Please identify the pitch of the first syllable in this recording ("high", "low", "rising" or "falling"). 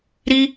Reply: high